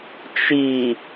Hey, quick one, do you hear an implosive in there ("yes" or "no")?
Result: no